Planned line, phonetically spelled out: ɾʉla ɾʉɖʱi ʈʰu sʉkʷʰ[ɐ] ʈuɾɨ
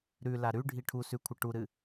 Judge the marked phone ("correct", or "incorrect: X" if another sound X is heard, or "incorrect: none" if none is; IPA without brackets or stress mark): correct